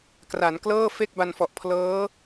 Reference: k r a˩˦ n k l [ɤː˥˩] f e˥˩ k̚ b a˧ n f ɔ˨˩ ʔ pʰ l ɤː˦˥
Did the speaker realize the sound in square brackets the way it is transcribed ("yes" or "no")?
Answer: yes